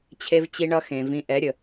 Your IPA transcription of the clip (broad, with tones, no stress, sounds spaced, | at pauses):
t͡ɕʰ e˦ v t͡ɕ i˦ ɳ ʌ˦ x ẽ˨ v ĩ˧ ʔ ɛ˨˦ ɾʲ ə˨